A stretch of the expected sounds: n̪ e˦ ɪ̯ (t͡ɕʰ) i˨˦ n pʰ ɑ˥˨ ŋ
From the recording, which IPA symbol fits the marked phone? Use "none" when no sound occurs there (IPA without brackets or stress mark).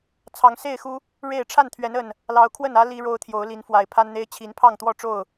t͡ɕʰ